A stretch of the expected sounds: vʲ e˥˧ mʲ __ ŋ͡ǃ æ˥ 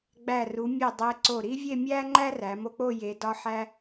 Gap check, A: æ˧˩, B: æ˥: B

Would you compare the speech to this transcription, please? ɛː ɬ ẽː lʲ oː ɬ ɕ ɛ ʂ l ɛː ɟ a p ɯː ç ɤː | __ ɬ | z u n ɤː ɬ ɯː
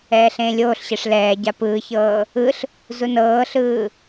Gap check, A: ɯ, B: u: A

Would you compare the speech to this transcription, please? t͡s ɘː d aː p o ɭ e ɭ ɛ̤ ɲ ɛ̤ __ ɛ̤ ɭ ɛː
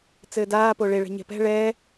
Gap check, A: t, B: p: B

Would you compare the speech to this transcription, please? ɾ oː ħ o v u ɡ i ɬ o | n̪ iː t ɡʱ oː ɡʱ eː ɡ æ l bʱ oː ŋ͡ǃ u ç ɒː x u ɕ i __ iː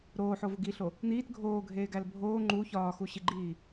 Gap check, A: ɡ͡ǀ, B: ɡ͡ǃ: B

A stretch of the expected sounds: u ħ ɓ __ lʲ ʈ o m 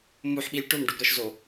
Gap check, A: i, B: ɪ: A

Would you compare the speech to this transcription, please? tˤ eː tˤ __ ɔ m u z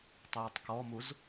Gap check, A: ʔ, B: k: B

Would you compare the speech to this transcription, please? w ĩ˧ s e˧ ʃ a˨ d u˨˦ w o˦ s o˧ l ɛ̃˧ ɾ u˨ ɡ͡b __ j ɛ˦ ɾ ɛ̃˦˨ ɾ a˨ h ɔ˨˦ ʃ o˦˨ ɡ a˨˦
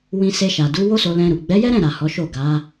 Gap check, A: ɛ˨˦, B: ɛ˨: A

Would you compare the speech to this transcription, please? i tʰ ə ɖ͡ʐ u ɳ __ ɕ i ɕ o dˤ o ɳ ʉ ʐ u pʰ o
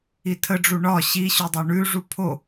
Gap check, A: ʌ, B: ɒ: B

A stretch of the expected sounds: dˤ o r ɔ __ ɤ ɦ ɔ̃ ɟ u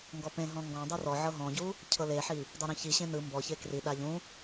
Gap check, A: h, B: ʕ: B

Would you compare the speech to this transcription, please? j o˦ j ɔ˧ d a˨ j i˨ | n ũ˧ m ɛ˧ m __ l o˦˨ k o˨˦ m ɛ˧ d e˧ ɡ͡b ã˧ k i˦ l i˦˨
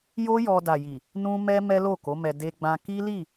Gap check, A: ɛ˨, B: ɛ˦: B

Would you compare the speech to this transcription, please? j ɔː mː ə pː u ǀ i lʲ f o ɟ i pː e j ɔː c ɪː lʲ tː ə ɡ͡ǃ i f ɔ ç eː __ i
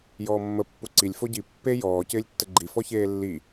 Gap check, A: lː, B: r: A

